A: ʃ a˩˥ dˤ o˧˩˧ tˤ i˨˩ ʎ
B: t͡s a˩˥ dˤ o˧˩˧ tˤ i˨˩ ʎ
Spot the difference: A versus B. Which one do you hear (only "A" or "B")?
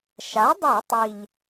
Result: A